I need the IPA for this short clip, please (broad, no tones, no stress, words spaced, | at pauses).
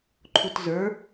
ǃʰutzə˞